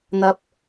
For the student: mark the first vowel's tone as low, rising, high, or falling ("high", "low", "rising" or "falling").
low